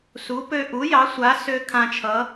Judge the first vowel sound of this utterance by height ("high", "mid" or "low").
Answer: high